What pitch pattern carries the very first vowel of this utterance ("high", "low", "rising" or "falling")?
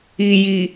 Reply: low